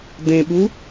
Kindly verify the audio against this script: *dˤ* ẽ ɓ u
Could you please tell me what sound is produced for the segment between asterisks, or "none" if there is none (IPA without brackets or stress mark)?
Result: d